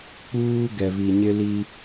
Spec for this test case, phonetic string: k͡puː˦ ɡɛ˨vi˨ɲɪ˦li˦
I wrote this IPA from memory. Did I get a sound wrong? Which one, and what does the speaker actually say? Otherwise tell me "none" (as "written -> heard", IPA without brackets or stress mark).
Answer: none